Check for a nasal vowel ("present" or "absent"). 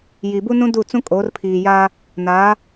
present